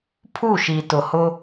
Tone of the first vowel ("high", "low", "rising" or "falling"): falling